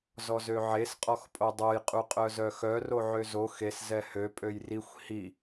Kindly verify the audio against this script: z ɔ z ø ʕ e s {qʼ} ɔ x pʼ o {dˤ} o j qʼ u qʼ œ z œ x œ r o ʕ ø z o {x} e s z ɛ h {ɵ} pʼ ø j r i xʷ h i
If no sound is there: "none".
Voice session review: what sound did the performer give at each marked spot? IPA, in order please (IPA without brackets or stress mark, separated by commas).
qʼ, dˤ, x, ø